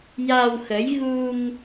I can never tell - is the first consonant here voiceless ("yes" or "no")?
no